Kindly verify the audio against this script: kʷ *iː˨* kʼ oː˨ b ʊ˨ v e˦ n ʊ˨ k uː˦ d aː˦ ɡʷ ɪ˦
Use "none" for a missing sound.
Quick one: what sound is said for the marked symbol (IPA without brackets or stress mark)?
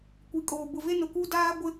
i˨